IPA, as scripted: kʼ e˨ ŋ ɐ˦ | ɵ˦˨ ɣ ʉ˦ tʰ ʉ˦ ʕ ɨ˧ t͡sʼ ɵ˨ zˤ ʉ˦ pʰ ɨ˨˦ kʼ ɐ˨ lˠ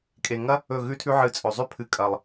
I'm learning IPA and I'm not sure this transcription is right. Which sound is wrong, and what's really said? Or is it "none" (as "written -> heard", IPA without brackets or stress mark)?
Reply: none